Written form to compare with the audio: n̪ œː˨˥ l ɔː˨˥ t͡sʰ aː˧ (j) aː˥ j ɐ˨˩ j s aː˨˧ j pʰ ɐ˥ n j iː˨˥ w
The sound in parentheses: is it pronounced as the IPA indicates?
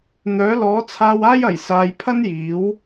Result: no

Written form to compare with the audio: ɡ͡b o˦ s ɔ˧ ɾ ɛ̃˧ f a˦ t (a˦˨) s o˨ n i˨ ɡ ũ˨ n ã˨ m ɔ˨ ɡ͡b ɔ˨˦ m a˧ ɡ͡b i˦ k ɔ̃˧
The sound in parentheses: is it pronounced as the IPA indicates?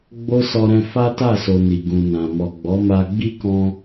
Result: yes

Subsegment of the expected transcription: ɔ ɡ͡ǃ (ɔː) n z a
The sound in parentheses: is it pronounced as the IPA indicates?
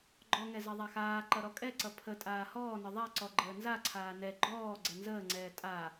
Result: no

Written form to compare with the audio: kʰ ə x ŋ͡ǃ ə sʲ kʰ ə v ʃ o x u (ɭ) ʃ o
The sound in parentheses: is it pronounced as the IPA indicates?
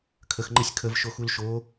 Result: no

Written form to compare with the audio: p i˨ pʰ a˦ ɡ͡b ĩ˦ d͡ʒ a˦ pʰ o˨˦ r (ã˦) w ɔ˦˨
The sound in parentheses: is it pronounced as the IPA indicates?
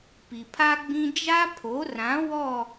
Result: no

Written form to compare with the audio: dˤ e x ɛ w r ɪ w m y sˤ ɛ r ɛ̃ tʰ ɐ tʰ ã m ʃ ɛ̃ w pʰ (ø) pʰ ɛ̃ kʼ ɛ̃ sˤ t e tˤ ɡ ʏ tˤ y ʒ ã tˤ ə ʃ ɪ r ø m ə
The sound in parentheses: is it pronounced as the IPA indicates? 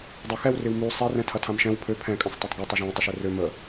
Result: yes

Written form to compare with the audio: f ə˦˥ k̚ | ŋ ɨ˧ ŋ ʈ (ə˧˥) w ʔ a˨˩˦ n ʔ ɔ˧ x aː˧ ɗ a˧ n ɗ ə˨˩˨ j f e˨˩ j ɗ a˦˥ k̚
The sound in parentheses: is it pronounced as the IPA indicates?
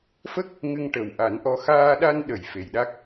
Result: no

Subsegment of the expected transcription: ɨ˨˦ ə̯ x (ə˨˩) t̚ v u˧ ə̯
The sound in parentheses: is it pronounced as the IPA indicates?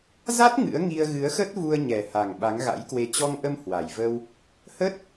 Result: no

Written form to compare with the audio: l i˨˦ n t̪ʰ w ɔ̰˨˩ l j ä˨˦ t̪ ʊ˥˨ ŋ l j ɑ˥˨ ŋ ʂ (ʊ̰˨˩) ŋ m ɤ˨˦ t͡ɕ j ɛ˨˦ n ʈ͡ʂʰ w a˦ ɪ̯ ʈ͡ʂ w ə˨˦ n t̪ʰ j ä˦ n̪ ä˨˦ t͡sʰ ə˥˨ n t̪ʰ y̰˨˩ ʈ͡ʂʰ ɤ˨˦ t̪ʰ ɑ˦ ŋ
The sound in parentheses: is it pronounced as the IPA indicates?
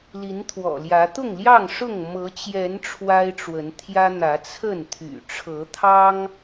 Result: no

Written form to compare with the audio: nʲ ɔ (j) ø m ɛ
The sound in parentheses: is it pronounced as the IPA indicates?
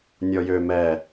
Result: yes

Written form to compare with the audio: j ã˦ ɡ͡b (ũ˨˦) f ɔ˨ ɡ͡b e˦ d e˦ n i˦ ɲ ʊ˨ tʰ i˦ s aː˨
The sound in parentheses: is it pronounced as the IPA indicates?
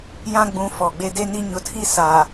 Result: yes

